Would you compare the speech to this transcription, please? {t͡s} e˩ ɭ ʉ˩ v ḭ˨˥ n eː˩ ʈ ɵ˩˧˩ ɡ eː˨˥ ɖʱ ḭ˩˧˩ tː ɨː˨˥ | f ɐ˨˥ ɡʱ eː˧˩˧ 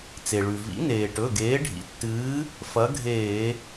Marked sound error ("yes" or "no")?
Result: no